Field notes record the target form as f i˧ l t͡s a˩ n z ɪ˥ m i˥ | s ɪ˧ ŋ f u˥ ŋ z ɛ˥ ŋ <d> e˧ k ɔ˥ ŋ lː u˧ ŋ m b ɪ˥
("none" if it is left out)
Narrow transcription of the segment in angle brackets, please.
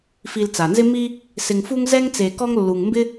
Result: t͡s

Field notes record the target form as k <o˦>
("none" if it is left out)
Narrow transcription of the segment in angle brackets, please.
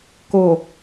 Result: o˨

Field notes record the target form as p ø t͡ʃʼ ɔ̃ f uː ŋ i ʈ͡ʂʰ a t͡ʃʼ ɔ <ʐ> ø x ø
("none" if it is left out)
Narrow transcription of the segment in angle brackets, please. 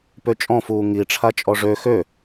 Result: ʐ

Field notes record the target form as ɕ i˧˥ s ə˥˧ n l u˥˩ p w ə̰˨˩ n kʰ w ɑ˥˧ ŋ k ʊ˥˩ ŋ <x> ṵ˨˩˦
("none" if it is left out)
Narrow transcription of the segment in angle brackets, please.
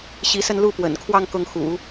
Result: x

